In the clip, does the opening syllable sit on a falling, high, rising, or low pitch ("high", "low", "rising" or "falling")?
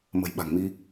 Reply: low